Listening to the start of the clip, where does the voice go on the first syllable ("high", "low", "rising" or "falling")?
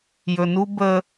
low